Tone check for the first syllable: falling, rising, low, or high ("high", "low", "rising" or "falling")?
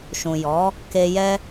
low